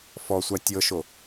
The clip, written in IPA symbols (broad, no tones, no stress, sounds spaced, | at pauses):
f ɔ sʷ a tʲ ɤ ʃ o